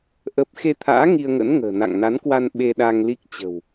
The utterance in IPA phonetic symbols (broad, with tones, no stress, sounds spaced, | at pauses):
ʔ ə˦˥ p̚ x e˧ t̪ʰ a̰ː˧˥ ŋ i˧ ə̯ ŋ ə̰˧˥ n ŋ ə̤ː˨˩ n a̰˧˨ ŋ n a˨˦ n k w a˧ n ɓ e˧ ɗ a˧ ŋ l i˦˥ k̚ t͡ɕ ə̤˨˩ w